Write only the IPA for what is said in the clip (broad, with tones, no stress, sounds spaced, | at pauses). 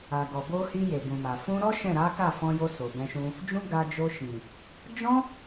a˨ ɡ ɔ˨ b o˧ h i˧ j e˨ b ũ˨ m a˨ f ũ˧ ɾ ɔ˦ ʃ ɛ̃˦˨ ɾ a˨˦ k a˦˨ f ɔ̃˧ j o˧ s o˨ b ɛ̃˧ ʃ ũ˧ | d͡ʒ ũ˦ ɡ a˧ d͡ʒ o˧ ʃ ĩ˨ | d͡ʒ ɔ̃˦